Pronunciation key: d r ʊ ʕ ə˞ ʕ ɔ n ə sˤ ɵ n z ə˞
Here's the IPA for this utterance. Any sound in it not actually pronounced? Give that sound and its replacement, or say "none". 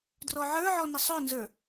ʊ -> ɔ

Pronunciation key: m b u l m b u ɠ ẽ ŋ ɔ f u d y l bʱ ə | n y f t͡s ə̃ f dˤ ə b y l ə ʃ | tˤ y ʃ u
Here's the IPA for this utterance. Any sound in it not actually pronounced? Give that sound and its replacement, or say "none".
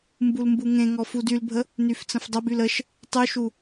ɠ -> ŋ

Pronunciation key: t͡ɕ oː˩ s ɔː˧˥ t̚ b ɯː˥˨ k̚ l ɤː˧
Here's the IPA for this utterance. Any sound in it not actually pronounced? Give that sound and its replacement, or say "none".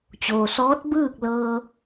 none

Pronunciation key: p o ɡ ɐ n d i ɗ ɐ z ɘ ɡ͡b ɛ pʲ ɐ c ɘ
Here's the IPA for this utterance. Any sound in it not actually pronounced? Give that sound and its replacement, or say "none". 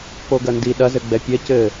none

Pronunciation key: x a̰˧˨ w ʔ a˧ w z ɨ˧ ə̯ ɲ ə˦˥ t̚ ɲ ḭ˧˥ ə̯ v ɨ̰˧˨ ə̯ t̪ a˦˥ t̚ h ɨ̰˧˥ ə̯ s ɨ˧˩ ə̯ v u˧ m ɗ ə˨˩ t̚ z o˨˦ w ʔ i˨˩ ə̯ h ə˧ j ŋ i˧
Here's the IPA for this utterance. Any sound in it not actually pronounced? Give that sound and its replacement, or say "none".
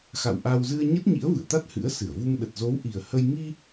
none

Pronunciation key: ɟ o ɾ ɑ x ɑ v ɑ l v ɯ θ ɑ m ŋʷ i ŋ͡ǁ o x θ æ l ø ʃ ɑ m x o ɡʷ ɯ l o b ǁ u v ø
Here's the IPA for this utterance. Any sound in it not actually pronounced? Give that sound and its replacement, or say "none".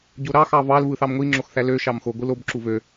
none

